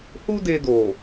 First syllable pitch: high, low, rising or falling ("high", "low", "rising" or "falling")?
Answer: high